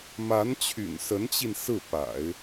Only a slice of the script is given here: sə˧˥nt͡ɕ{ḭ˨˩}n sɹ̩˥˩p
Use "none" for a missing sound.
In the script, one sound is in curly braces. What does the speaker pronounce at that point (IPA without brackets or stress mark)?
i˧